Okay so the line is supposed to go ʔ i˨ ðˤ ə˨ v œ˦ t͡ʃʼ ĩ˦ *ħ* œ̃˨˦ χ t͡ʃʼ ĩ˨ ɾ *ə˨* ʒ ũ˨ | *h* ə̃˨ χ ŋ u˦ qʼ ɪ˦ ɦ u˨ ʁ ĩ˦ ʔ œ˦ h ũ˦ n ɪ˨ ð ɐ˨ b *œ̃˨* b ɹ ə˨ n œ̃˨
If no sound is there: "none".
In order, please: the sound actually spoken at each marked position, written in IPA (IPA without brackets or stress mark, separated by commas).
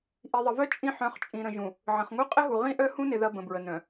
ħ, ə̃˨, ʕ, ə̃˨